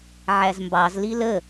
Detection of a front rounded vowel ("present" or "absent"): absent